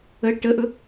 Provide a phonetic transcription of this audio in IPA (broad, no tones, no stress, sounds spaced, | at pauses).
ə ʈ ə ʔ ɵ